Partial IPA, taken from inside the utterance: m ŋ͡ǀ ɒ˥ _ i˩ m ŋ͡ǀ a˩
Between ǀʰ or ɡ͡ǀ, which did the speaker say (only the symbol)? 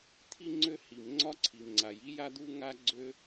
ǀʰ